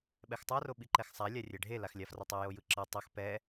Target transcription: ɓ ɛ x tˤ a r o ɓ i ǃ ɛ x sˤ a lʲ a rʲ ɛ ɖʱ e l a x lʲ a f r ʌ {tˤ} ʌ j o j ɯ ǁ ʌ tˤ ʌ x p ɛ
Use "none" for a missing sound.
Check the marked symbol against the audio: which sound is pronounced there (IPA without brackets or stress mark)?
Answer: tˤ